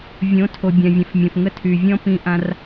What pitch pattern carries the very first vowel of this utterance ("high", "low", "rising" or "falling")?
rising